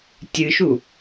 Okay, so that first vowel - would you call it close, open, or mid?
close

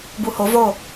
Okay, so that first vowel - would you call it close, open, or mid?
close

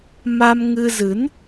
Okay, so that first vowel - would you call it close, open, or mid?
open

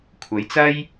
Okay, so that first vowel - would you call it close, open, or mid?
open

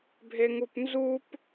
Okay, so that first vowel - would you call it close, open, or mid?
mid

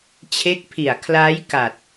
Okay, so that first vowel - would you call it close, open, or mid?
mid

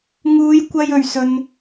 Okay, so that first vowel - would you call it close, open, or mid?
close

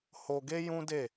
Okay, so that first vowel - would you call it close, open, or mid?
mid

